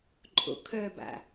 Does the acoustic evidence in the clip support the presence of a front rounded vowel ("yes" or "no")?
yes